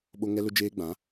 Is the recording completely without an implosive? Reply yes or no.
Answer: no